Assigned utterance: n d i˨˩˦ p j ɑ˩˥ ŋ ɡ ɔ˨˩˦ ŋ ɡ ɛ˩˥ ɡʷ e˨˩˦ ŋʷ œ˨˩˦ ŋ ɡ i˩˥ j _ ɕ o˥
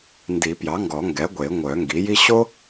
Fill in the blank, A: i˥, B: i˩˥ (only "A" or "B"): A